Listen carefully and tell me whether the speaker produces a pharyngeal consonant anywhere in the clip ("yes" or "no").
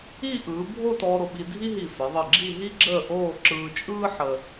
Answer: yes